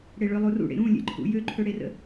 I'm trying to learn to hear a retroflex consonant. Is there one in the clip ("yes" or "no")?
yes